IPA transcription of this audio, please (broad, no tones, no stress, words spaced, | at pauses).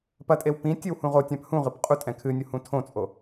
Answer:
pɐtʼew pĩ tʲɨwhũʁotʲãp hũʁɨp qʼutʼɛ̃ kʰɨnʲu hũtʰõt͡sʼo